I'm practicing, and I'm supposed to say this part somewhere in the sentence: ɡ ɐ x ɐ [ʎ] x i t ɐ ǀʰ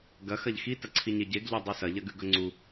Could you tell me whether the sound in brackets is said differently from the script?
no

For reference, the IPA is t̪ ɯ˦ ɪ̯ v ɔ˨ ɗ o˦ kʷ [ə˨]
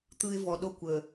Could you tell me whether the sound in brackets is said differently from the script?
no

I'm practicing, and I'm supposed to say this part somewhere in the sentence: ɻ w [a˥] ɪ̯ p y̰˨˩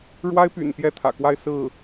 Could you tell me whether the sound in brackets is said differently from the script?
no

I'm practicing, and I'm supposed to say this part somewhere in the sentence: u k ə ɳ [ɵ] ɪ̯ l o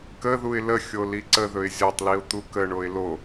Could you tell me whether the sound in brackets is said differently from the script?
yes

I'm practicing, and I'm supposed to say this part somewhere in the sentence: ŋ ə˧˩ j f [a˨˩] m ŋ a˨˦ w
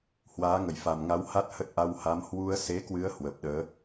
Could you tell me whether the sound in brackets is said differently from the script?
no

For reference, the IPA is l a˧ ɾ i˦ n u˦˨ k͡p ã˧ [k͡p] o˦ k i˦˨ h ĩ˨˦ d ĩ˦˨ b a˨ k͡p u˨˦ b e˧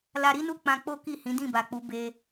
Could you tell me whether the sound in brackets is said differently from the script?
no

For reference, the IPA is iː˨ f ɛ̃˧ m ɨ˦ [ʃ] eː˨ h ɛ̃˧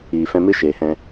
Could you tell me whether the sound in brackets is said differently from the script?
no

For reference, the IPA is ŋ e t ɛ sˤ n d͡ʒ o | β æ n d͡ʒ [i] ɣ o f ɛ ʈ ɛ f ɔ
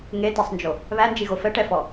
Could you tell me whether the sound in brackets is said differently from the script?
no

